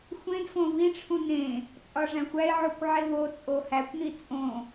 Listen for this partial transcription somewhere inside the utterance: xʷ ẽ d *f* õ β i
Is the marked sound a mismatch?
no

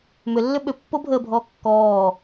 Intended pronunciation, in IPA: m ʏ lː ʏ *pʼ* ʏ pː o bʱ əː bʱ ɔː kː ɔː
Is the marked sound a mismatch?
yes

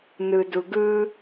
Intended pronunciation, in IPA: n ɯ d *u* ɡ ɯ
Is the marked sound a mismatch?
no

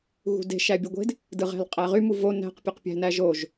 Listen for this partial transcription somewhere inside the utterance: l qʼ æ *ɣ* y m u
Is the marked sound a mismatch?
yes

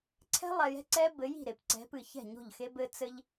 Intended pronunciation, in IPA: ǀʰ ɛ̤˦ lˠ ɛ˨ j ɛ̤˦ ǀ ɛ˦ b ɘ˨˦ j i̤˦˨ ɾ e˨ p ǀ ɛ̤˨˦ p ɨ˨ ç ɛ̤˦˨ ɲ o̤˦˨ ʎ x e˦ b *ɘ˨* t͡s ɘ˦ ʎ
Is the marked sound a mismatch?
yes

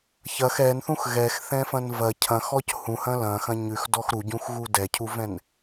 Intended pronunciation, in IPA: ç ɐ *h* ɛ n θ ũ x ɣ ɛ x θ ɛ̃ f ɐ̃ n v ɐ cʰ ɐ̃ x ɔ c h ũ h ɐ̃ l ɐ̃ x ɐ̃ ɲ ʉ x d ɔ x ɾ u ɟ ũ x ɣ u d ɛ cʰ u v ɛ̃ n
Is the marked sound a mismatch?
yes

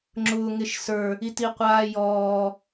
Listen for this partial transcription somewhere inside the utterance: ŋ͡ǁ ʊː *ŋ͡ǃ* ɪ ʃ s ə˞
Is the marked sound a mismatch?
yes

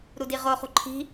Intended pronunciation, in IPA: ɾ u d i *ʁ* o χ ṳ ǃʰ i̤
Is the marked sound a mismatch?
no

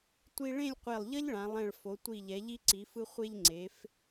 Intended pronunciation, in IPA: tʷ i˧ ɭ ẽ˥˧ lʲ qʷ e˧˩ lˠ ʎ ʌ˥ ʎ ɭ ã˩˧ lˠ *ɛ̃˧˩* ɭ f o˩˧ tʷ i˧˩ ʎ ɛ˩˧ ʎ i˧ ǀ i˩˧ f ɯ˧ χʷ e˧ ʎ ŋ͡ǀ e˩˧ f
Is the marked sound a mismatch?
no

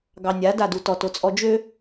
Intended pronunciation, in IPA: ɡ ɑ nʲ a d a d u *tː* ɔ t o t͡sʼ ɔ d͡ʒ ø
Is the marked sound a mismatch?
yes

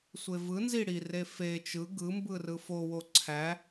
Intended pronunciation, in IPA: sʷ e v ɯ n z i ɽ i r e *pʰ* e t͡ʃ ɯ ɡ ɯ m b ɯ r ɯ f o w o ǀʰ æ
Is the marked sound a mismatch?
yes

